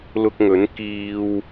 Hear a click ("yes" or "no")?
no